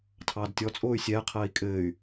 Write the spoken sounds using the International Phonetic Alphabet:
tʰɑːdtʲɔt͡sʼoːy̯ sʲɛː qʰɜːi̯kʼɘːy̯

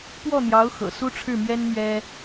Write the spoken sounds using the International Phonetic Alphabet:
pwɔ˥˩n̪jɑ˧˥ʊ̯xɤ̰˨˩ su˥ʈ͡ʂʰɻ̩˥˩mɥɛ˥n mɥɛ˥

